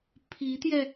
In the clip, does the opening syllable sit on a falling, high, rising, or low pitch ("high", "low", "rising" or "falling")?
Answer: rising